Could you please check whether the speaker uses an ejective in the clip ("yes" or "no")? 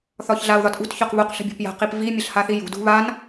no